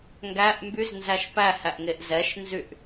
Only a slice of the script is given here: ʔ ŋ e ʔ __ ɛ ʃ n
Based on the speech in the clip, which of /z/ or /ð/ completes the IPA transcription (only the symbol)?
z